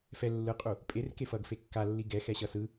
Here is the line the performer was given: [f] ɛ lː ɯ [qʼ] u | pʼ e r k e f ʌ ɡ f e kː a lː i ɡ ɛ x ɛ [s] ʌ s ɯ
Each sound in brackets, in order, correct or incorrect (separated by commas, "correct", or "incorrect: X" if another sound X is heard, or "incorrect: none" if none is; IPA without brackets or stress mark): correct, correct, incorrect: ɕ